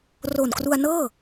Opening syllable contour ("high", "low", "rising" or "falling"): low